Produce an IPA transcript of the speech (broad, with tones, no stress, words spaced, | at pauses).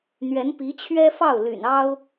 n̪ɥɛ˧˥n pi˧˥t͡ɕʰɥɛ˥fɑ˥˩ʊ̯ ly̰˨˩nɑ˥ʊ̯